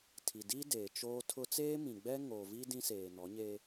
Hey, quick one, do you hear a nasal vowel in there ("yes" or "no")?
yes